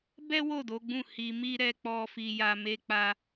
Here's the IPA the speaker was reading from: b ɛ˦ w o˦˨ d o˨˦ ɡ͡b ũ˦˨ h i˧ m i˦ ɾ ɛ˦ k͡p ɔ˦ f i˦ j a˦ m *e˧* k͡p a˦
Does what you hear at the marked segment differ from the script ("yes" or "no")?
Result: yes